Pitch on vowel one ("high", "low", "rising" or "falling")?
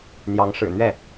rising